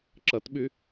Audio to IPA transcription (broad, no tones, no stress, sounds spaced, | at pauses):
ǁ ɐ t ɓ y